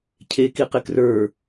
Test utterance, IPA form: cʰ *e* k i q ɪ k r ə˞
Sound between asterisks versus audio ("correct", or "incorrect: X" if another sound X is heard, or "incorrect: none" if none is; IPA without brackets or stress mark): correct